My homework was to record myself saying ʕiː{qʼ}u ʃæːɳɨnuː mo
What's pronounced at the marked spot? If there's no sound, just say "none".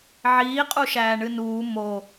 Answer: qʼ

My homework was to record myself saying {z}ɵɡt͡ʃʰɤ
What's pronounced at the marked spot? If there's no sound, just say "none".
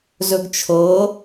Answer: z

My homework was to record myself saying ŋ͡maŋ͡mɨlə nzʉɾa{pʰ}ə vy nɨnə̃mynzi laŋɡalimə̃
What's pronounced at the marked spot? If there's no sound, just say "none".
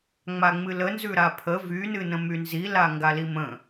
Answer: pʰ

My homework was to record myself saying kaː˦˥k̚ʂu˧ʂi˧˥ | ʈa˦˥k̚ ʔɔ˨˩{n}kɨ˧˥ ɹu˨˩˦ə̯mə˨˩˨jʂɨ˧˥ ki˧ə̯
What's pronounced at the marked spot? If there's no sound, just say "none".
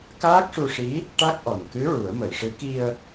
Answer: n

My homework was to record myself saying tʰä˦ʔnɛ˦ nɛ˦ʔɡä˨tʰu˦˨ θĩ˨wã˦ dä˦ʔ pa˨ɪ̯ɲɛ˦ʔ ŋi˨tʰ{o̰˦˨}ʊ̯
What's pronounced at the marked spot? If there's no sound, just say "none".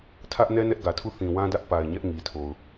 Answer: o˨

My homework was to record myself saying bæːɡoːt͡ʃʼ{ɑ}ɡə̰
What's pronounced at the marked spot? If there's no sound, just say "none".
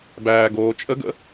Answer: ə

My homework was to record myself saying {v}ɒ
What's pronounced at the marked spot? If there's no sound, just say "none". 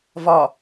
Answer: v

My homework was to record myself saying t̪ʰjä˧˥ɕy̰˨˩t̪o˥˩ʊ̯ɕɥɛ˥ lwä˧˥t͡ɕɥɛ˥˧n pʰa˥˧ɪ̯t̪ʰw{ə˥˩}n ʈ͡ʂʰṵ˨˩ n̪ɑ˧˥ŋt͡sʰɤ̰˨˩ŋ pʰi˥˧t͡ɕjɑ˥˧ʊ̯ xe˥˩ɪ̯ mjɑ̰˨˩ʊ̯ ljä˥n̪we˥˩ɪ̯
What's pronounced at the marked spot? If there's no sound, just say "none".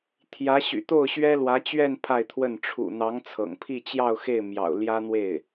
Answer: ə˥˩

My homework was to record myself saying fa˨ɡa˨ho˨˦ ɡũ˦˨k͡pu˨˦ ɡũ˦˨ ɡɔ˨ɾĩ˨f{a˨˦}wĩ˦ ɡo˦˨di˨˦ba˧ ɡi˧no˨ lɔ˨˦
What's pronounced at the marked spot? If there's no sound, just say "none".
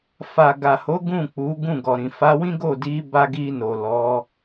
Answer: a˨˦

